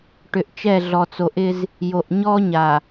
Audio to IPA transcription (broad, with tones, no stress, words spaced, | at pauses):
ʈʏ˨ʔt͡ʃɛ˦˨ ɮɔ˨t͡so˨ʔɪ˦z | jo˨ʔɲɔ˦ɲa˨